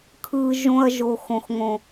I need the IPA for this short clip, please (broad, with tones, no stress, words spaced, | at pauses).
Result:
kʰɯ˧ ʒõ˧ɐ̯ ʒo˨xõ˨xŋõ˨